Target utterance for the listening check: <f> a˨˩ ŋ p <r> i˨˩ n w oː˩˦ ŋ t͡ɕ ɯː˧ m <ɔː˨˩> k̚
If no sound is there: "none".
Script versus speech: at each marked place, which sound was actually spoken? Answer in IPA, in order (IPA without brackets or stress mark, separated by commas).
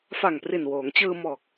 f, r, ɔː˨˩